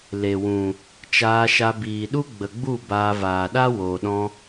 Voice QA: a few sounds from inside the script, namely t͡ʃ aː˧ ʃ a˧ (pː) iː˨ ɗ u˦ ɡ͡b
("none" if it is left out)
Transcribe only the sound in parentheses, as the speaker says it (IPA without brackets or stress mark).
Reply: b